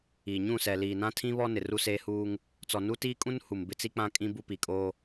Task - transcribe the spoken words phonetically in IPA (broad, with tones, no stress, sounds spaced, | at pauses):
iː˨ ɲ ũ˦˨ s ɛ˨ l iː˨ n ã˦ tʰ ĩ˦ β ɔ˦ n ɪ˨ r u˦ s eː˦ h uː˦ ŋ | t͡s ɔ˨ n u˦ t iː˦ kʼ ũ˦ n h u˨ m b ɪ˦ t͡s i˦ k͡p ã˦ kʼ ĩ˦ b u˦ p i˨ kʼ oː˦